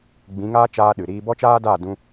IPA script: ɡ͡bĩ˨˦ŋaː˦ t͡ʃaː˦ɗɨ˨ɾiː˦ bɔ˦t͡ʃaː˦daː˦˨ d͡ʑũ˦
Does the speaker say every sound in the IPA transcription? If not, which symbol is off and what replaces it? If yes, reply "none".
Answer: d͡ʑ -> d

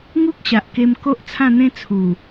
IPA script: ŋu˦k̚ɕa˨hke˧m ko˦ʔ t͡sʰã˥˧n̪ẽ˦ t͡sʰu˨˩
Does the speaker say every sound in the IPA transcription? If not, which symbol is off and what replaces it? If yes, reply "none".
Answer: h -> ʔ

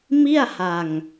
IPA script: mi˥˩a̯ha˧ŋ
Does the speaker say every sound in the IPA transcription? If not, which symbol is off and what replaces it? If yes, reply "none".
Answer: none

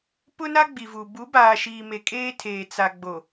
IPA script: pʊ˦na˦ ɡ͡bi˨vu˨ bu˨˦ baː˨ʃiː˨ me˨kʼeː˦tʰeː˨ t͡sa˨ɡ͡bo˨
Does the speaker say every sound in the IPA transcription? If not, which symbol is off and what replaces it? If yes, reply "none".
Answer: none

